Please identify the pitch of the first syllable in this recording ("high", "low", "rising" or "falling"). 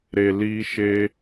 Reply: low